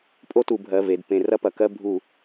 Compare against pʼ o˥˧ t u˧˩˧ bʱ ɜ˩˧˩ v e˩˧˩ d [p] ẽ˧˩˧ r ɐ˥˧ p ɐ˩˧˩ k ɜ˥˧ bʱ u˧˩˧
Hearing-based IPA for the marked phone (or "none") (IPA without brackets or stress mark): p